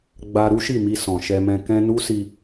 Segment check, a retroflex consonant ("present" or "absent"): absent